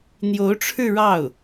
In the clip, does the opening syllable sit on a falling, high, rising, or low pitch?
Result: rising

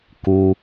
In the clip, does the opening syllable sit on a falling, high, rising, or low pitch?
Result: high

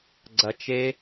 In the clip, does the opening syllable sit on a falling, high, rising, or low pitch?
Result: low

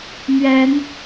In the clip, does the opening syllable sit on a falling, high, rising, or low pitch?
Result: rising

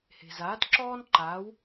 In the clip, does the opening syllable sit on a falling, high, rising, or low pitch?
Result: low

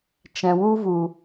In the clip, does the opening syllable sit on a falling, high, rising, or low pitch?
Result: low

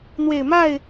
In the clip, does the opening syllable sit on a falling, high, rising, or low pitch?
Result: low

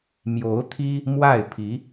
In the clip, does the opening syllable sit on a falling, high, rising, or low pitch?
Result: rising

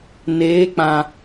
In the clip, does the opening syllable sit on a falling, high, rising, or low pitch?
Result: rising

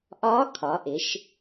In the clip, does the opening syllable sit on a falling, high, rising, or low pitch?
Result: rising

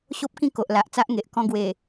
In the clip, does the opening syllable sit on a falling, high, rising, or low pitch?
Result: high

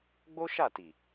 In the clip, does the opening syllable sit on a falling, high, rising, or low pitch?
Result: high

